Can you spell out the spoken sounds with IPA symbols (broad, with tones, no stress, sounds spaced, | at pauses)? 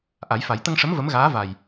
ʔ a˨˩˦ j f a˨˩˦ j t̪ ə˧ ŋ ʂ ə˧˥ m v ə˧˥ m ɣ aː˧˥ v a˨˩ j